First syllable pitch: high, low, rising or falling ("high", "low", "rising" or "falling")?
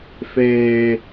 low